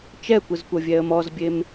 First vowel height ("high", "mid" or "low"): mid